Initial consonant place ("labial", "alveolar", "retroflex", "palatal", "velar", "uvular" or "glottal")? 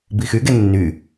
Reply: labial